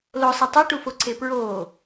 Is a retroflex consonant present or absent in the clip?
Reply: present